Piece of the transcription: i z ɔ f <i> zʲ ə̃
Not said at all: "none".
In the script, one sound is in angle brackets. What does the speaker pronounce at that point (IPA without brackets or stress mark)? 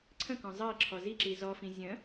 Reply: ĩ